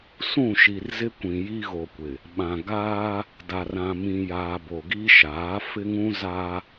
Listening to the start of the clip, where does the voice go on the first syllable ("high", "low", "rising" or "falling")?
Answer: falling